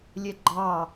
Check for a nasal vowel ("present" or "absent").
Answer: absent